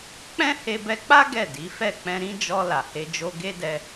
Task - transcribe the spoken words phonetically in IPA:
k͡p ɛ̃˦ h e˧ b ɛ˧ k͡p a˦ ɡ ɛ˦˨ d i˨˦ f ɛ˦˨ k͡p ɛ̃˧ ɾ ĩ˦ d͡ʒ ɔ˧ l a˨ h e˧ d͡ʒ o˦ ɡ e˦ d ɛ˧

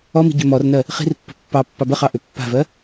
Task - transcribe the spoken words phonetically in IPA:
ɔ m i̤ ɟ ʏ m ɔ r n ɜ | χ i̤ r pː ə̤ pː ɑ pː ɑ b ə χ ɑ ʔ ʏ pː a̤ v ɜ

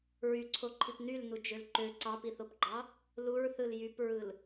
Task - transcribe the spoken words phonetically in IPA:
ɹ y ǀʰ o ǃʰ i p n y l n u d͡ʒ ø l ǃ ø ǀ ɑ p i θ o p ɡ͡ǃ ɑ | l u ɹ θ ɯ l j y p ɹ ɯ l

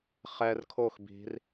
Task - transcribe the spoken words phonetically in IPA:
χ ɛ r kʰ o x b i̤ r

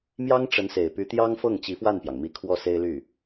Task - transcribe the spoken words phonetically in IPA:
m j ɑ˥ ŋ ʈ͡ʂ ə˧˥ n s e˨˩ ɪ̯ p y˧˥ t̪ j ɑ˥ ŋ f ɤ˥˩ ŋ t͡ɕ i˧˥ f w a˥˩ n p j ɑ˩ ŋ m i˧˥ kʰ w ɔ˥˩ s e˥ ɪ̯ l y˥˩

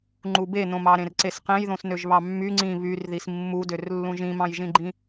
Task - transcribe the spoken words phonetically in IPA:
ŋ͡ǃ u b e n õ m ɑ ɾ ẽ r ǀ e s q ẽ j ð õ s n ø ʒ β ɑ mː y ŋ͡ǀ ĩ β y r ð i s mː u d ø r lː ũ ʒ ĩ m ɑ̃ j ʒ ĩ ɡ͡ǃ ĩ

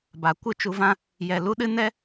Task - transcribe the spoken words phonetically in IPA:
b a˨ kʷ ɨ˦ t͡ʃ u˧ v ã˦ | j ɛ˨ l u˦ ɗ ɨ˦ n ɛ˦

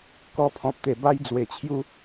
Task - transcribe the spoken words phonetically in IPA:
k ɔ˧ pʰ ɔ̃˨ p̚ t̪ e˨˩ b a˦ j d͡z w e˨˩ t͡ɕʰ j u˦

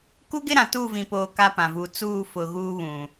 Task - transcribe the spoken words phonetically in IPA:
k u˦ ɡ ɪ˦ ɾ ã˨ t uː˦˨ v ĩ˨ p oː˨ k a˦ p ã˨ v uː˨ t͡s uː˦˨ f ʊ˨ ɣ uː˦ β ũ˨

